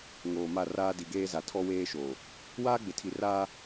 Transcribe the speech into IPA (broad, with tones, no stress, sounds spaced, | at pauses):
ŋ oː˨ m a˦˨ r aː˦ d i˨ ɡ eː˦ z a˨ tʰ ɔ˦ w eː˦ ʃ oː˨ | w aː˦ ɡ͡b ɪ˨ tʰ i˨ r aː˦